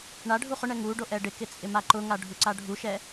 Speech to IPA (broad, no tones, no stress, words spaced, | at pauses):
ɳaɖʱu χʊɳɛ ŋuɖo ʔɛɖɪkɪ t͡sʼɪmaǃʊŋa ɖʱuǀaɖʱuʃɛ